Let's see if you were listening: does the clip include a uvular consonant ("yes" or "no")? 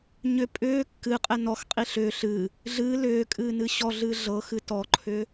yes